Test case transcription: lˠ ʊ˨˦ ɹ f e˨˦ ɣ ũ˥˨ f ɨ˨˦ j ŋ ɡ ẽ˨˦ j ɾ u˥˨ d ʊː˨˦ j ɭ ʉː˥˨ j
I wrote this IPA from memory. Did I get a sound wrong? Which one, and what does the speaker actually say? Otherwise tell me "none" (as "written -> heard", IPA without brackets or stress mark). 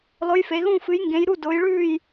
ɹ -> j